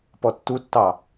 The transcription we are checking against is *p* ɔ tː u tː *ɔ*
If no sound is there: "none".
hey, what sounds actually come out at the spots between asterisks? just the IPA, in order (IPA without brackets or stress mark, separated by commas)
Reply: p, ɑ